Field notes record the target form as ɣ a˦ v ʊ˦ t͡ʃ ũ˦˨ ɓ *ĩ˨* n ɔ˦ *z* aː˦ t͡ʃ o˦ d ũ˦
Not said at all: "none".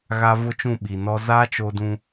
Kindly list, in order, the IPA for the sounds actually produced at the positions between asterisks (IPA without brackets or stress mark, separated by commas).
i˨, z